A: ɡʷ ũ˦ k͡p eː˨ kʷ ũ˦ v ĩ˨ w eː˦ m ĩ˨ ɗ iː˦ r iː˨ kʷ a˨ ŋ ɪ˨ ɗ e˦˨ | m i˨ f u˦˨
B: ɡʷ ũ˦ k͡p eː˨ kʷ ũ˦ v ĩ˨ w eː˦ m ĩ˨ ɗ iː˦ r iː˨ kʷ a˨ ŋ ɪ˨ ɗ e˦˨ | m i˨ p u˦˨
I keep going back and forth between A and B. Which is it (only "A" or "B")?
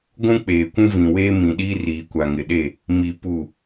B